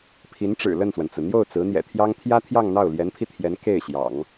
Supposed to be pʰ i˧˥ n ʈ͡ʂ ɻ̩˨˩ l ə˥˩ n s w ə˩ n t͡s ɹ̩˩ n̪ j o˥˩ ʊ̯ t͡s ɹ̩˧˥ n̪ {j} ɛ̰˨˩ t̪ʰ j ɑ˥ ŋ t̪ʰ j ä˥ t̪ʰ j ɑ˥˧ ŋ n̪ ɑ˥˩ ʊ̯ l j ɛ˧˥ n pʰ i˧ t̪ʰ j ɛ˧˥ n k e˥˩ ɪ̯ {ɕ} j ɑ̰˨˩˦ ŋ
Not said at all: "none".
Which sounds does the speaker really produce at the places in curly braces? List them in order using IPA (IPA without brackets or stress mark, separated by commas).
j, ɕ